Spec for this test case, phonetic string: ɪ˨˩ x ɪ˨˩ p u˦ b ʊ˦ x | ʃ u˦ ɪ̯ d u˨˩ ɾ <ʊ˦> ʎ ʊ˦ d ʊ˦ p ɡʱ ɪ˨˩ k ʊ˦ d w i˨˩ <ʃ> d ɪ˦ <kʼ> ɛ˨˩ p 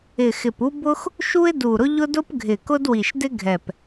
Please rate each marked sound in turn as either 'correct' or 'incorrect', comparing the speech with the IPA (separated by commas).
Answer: correct, correct, incorrect